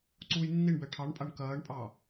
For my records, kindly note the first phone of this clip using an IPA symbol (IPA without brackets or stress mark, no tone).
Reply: ǀ